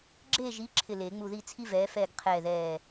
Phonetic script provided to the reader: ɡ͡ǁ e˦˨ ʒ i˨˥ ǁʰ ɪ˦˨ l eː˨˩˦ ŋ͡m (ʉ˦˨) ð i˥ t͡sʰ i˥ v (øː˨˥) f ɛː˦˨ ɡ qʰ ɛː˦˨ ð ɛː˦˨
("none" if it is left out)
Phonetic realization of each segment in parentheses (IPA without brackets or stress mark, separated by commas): u˦˨, ɛː˨˥